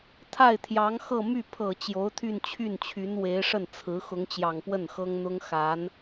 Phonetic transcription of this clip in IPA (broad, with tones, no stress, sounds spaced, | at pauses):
t̪ʰ a˥˩ ɪ̯ t̪ʰ j ɑ˧˥ ŋ x ɤ˥˧ m y˥˩ pʰ ɤ˨˩ t͡ɕ j o˧˥ ʊ̯ t̪ʰ y˥˧ n t͡ɕʰ y˥˩ n t͡ɕʰ y˧˥ n w e˧˥ ɪ̯ ʂ ə˥˩ n t͡sʰ ɹ̩˧˥ x ʊ˧˥ ŋ t͡ɕ j ɑ˨˩ ŋ p w ə˥˩ n x ɤ˥ ŋ n̪ ʊ˥ ŋ x a˧˥ n